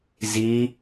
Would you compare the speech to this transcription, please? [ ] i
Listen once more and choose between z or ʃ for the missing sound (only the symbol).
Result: z